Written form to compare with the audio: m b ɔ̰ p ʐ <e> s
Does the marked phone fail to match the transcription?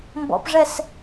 yes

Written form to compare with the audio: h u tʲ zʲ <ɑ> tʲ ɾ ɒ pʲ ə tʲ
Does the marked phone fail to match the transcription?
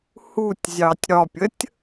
no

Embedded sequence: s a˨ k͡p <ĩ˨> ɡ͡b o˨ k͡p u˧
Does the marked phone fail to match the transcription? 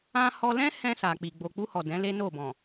yes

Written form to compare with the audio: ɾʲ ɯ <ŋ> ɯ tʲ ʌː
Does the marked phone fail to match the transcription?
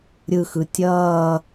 yes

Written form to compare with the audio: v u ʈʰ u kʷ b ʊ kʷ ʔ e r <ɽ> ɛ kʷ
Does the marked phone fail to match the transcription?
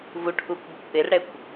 no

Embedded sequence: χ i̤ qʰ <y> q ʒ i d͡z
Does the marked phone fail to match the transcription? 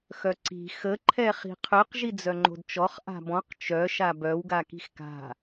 no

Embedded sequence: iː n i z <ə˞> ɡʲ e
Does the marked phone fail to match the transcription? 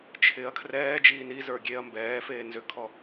no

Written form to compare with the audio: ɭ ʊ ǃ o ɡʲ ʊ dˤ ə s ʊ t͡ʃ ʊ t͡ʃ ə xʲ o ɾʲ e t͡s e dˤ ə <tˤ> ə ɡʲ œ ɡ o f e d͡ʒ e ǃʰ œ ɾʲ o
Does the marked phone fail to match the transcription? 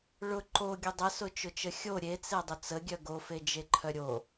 yes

